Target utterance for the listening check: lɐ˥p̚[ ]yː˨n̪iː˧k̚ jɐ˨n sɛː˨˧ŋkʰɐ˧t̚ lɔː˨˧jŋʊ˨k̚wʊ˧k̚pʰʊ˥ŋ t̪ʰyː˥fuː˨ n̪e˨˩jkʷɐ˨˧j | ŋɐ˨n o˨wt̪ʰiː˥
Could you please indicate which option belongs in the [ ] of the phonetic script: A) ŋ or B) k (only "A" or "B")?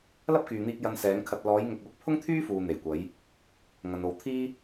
B